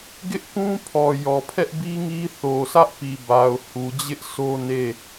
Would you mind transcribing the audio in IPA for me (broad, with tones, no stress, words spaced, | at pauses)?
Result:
ɡɪ˦ʔkũ˦ pʰɔ˨jɔ˨ pʰɛ˦ʔbi˦ŋi˦ θo˨sä˦ʔpi˨ba˨ʊ̯ hu˨d͡ʑɪ˦ʔ sʰo˦ne˦˨